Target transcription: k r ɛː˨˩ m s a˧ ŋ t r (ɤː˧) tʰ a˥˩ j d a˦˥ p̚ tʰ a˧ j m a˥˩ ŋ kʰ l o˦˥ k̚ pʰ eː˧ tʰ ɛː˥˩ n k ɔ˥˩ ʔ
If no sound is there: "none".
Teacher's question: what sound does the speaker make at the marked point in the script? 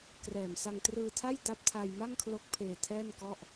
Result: ɯː˧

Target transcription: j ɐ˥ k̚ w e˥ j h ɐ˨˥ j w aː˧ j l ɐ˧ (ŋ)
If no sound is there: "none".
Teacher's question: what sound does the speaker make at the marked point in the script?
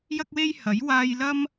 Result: m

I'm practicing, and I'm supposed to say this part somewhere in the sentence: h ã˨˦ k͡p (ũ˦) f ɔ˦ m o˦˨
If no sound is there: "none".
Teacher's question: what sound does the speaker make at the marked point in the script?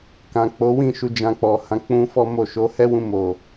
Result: ũ˦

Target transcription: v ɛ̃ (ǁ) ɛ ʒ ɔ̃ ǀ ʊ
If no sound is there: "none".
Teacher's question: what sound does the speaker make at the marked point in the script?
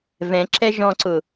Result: ǁ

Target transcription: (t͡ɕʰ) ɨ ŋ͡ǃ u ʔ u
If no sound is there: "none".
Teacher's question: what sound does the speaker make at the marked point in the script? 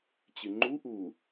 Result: t͡ɕ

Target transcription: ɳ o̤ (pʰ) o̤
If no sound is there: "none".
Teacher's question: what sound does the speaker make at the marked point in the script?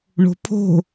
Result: pʰ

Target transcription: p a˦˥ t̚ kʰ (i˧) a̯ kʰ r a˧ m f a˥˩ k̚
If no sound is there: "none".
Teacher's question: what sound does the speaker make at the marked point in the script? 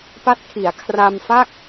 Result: i˩˦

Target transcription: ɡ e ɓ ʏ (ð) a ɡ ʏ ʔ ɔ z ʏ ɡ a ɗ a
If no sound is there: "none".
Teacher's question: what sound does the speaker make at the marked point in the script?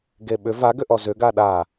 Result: v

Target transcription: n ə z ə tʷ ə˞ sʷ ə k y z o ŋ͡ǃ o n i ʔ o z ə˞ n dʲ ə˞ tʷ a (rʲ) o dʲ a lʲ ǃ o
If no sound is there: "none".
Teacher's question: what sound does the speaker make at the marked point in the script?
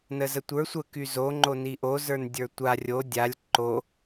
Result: rʲ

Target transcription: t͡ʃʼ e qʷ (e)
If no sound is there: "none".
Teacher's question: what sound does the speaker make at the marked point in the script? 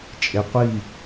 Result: i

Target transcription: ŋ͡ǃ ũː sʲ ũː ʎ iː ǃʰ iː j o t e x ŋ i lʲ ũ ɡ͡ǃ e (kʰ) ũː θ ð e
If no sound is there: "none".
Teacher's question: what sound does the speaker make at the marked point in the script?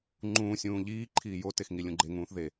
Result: ŋ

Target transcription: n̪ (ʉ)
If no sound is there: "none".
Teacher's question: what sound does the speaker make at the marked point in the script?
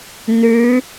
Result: ʉ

